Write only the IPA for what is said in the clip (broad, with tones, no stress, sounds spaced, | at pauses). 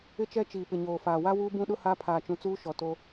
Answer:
ɪ˦ t͡ʃ ɛ˦ t͡ʃ iː˨ p ɪ˨ ɲ oː˨ f aː˨ w a˦ w uː˦ b ũ˦ ɗ ʊ˦ h a˦ pʰ aː˨ t͡ʃ ũ˨ t͡s uː˦ ʃ ɔ˨ t o˦